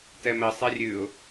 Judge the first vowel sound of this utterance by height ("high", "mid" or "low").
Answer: mid